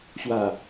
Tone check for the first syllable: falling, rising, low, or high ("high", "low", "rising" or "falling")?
low